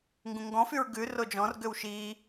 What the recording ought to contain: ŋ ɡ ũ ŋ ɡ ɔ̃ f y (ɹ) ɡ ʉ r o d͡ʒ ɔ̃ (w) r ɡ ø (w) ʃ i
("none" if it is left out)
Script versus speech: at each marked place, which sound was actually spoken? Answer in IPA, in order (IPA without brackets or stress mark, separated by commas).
ɹ, none, w